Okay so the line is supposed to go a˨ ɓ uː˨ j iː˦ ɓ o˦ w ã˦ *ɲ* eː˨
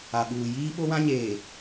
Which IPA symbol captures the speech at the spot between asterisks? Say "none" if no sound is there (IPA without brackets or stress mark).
ɲ